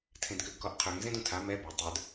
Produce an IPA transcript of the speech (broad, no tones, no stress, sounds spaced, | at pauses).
tʰ ẽ d k ø ɡ k ɔ ʔ qʰ ø ŋ z ẽ d ũ tʰ a m ɛ b ø tˤ ə˞ d